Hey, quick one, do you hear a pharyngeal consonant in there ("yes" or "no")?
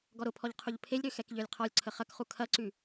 no